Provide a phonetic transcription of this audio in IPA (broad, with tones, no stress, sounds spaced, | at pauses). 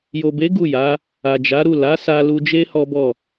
j o˨ b e˨˦ ɡ u˦˨ j a˨˦ | a˨ d͡ʒ a˨˦ ɾ u˦˨ l a˨˦ s a˧ l u˧ d͡ʒ e˦ h ɔ˦ b ɔ˦˨